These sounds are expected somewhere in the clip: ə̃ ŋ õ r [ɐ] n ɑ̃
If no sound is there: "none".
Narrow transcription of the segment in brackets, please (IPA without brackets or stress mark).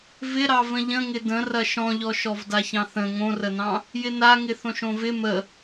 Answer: ə